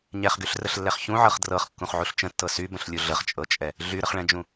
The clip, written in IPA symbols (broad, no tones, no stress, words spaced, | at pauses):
ɲɛχɡyɬrəɬlːɛχ çũʕɤχ drɤχkːũχʕuɬ t͡ʃə̃tːɤ sybə̃ɬlʲu ɮəχt͡ʃʼɤt͡ʃʼɛ | ɮyɾəχɭɛ̃d͡ʒũ